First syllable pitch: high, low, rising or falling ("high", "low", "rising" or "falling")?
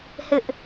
high